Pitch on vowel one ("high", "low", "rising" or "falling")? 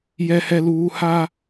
low